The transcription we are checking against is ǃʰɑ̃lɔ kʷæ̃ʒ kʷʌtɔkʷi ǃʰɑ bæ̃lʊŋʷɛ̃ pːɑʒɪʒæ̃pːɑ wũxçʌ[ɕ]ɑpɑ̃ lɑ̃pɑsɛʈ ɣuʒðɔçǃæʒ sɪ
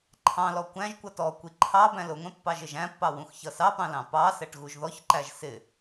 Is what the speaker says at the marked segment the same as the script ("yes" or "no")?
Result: no